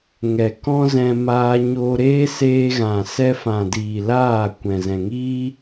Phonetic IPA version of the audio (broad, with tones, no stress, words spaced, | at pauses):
ŋɛ˨ kɔ̃˦zɛ̃˧ maː˧ ɲoː˦ ɾeː˦seː˧ɣã˨ sɛ˧fã˨diː˨ laː˦˨kʷɛ̃˨ zɛ̃˨ŋiː˦